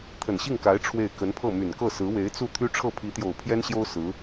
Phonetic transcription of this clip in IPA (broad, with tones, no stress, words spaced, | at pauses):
t̪ʰə˨˩nɕi˥˩ŋka˧˥ɪ̯ ʈ͡ʂʰwe˥˩ɪ̯ kə˧˥npʰɤ˥˩ my˨˩nkɤ˥˩sɹ̩˧˥ we˧˥ɪ̯t͡su˥˩t̪ʰy˥ ʈ͡ʂʰɤ˥˩pʰi˧˥t̪jo˨˩ʊ̯ pʰjɛ˥nɕjo˥ʊ̯ sɹ̩˧˥